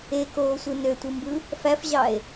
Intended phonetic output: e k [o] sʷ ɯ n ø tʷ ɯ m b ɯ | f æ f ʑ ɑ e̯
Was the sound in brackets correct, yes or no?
no